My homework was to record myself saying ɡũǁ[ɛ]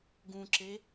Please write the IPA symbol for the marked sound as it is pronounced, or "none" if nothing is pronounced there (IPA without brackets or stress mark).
e